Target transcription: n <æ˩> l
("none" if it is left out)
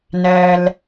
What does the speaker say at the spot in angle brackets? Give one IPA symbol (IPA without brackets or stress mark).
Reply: æ˩